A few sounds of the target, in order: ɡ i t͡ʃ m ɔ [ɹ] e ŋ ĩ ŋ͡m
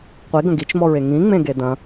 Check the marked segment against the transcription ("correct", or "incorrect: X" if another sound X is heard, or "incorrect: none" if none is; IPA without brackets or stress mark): correct